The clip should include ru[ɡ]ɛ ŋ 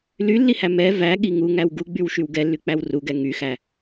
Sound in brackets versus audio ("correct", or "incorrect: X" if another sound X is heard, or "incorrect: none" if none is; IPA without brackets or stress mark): correct